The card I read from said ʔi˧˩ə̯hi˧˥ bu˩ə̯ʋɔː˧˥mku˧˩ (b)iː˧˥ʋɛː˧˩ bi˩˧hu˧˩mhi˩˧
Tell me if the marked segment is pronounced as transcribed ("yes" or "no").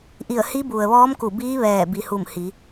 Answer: yes